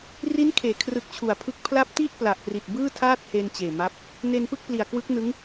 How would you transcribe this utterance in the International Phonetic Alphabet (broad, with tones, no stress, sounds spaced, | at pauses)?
r i˦˥ n kʰ eː˩˦ kʰ r ɯ˨˩ k̚ t͡ɕʰ u˩˦ a̯ pʰ ɯ˦˥ k̚ pʰ l a˦˥ p̚ t i˥˩ ʔ p l a˨˩ ʔ p r i˨˩ t̚ b ɯː˥˩ tʰ aː˥˩ t̚ h e˧ n t͡ɕ eː˨˩ m a˦˥ p̚ | n e˧ n p ɯ˥˩ k̚ p l i˨˩ a̯ k w ɯ˦˥ k̚ n ɯ˦˥ ŋ